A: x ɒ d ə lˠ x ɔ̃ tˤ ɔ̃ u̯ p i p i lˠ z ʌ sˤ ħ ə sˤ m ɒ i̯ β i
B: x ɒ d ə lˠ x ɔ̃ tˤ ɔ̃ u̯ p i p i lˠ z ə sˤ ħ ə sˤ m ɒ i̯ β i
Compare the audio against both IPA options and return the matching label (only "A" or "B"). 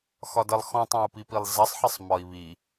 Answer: A